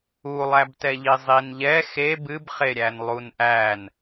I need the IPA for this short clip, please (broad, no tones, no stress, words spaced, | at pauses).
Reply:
ulˠæbtɛʎi zˤinʎɛ xe bɨbχeɾʲæn lˠunʔæn